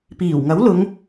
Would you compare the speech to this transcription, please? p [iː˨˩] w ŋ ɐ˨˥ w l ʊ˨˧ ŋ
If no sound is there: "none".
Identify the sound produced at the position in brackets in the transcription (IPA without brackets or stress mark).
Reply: iː˨˩